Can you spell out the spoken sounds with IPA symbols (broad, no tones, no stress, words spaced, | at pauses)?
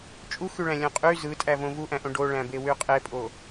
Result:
t͡ʃʼuxyɭæ̃ lʲõqʼy zɯtʼævõ vuʔæ̃ʔõ ɖoɭæ̃be wyqʼepʼo